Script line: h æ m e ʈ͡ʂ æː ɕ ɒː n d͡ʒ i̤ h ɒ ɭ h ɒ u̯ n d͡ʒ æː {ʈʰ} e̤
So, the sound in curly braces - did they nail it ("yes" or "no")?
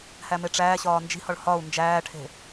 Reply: yes